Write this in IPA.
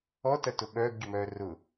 ɔ t ɐ t ʊ ɓ œː ɡ ɟ ʊ m œː r ʊ

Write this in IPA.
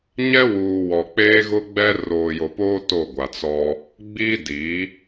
ɲ ɛ˦ w uː˨ w ɔ˨ k͡p eː˦ ɣ ʊ˦ ɡ͡b ɛ˦ r oː˨ j o˨ p oː˦ t o˦˨ ɡʷ a˨ t͡s ɔ˦ | ɡ͡b i˦ d i˨˦

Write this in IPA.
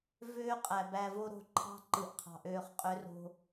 v øː˦ qʼ æ˨ b æ˨ v o˧ ɾ o̤˨ ǃʰ ɑ̤˦ ǃ ɯ˨ ʔ qʰ ɑ̤˨ ʔ øː˧ χ qʼ ø˦ r o̤˦

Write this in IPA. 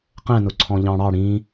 q ɛ̃ n ʊ ǀʰ ɔ̃ ʎ ɑ̃ ɽ ɑ ɽ ĩ

